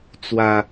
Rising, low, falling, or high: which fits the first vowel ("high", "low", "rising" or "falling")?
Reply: low